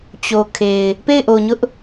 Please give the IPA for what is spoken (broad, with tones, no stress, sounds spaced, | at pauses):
t͡ɕ o˨ kʰ e˨ ɪ̯ | p e˦˨ ɪ̯ ʔ o˨ ɲ ʊ˦ ʔ